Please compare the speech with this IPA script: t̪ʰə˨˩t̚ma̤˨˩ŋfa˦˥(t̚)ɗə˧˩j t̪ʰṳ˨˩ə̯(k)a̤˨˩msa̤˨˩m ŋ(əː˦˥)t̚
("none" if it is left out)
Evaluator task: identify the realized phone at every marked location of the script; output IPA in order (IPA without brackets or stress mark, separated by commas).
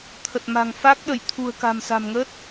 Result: k̚, k, əː˦˥